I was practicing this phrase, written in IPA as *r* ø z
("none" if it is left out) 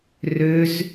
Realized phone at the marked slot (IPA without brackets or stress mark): r